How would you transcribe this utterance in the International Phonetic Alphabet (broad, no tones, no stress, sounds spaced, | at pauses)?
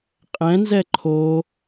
qʼ ɛ̃ n z ɛ ǃʰ o